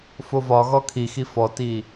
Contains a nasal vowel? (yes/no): no